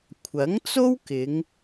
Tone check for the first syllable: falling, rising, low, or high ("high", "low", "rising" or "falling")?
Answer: rising